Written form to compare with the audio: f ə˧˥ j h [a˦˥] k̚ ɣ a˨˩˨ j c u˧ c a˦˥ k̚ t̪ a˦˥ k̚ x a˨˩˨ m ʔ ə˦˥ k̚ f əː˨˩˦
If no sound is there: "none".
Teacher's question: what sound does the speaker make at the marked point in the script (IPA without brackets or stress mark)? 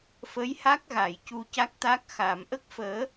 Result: a˦˥